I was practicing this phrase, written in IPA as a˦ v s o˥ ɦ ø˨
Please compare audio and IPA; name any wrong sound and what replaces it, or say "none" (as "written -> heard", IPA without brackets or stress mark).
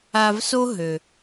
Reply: none